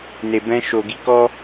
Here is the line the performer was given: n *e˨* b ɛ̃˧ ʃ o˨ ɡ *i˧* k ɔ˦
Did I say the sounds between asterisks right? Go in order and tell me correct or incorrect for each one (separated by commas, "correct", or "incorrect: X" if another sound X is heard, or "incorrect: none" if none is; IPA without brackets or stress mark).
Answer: correct, correct